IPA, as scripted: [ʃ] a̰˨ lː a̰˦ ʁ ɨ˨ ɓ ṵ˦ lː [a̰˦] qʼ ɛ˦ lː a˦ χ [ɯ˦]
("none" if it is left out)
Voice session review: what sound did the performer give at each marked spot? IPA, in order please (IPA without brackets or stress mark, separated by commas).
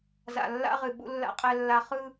z, a̰˦, ɯ˦